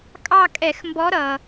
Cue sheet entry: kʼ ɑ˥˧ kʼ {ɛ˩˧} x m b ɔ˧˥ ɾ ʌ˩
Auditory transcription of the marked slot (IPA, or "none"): ɛ˧˩˧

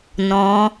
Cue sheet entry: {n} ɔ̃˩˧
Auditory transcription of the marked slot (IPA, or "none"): n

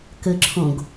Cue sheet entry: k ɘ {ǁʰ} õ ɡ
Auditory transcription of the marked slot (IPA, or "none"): ǁʰ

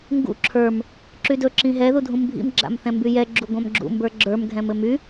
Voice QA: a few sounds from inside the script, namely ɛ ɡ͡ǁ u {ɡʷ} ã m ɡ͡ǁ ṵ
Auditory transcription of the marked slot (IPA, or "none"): ɡʷ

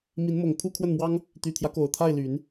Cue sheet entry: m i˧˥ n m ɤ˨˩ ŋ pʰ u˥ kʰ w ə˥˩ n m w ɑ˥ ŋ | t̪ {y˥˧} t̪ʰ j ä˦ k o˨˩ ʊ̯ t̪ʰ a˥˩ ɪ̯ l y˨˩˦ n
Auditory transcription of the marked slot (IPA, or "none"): y˨˩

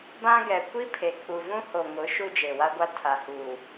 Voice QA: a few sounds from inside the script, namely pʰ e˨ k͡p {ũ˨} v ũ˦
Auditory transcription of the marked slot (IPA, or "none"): u˨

